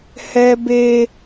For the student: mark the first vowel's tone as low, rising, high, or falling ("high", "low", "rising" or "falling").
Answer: high